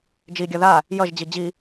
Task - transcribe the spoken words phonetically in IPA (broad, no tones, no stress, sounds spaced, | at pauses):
d͡ʒ i ɡʲ ʌ ð a | j ʌ ʒ d͡ʑ i d͡ʑ i